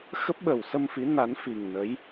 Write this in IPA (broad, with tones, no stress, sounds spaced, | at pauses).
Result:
x ə˦˥ p̚ ɓ ə˨˩ w s ə˧ m f i˨˦ n a˨˦ n f i˨˩ ŋ n ə˨˦ j